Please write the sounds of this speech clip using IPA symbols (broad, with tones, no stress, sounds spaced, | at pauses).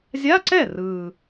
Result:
zʲ a˧˥˧ ǀ ɛ˥˩ r ɯː˨˩